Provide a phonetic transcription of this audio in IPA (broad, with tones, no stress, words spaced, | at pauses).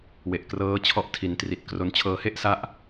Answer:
we˨˩ʔkrɤː˦˥ t͡ɕʰɔ˦˥ʔtʰi˩˦ntri˨˩t̚kro˧n t͡ɕʰɤː˧he˥˩ʔsa˦˥ʔ